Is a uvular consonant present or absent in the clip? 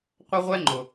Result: present